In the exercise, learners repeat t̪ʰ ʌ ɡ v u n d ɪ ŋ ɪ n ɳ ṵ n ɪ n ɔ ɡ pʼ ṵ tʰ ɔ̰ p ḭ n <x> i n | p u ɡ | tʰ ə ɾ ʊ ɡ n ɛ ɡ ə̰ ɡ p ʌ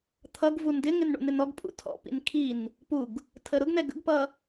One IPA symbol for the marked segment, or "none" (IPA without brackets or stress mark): kʰ